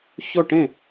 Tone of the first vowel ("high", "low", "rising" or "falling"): falling